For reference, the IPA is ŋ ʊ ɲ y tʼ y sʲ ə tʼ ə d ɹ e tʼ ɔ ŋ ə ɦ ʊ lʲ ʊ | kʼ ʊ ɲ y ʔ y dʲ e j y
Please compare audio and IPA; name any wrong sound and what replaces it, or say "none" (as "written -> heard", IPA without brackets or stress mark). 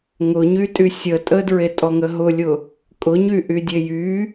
none